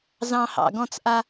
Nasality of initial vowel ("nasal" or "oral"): nasal